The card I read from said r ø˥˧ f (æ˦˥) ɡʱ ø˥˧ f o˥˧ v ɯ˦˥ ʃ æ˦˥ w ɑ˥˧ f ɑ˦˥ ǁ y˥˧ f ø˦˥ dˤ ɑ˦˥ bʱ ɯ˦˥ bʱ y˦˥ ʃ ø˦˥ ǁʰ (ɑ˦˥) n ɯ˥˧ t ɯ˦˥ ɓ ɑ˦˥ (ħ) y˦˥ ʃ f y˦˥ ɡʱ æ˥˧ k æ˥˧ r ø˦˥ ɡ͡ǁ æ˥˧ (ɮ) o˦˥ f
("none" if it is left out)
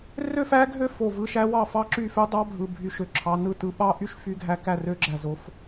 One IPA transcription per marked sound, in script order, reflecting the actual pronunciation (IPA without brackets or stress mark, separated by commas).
æ˦˥, ɑ˦˥, ʔ, z